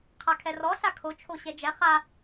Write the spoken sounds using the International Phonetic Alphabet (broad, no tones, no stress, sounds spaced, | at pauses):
qʰ a kʰ ɛ r ɔ ɬ a kʰ o t͡ʃʰ o ɕ ɛ d͡ʒ ɛ χ a